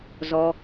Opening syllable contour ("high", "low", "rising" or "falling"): low